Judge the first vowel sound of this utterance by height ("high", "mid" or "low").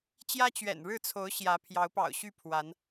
low